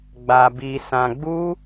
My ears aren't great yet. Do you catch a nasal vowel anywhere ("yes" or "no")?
yes